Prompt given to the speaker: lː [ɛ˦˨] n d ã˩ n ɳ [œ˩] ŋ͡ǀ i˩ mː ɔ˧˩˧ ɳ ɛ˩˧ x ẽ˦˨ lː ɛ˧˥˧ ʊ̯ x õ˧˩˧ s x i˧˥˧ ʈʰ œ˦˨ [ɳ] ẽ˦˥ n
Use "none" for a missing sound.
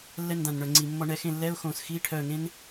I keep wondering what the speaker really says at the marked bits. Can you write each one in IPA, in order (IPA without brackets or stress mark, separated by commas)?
ɛ˦˨, œ˩, ŋ